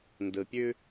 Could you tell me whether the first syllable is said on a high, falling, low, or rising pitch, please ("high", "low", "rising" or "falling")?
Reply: low